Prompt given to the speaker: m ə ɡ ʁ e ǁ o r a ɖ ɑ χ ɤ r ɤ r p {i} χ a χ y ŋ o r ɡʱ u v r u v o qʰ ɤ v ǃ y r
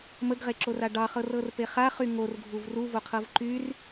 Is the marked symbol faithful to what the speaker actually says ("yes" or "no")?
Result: no